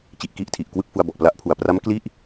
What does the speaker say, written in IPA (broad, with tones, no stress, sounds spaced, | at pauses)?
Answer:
t͡ɕ i˨˩ ʔ k i˦˥ ʔ tʰ i˨˩ ʔ k w ɯ˥˩ k̚ f u˧ a̯ b ɔ˨˩ ʔ p l a˦˥ ʔ pʰ u˨˩ a̯ p r a˦˥ m k l i˥˩ ʔ